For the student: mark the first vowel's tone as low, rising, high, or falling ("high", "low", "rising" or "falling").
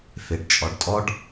low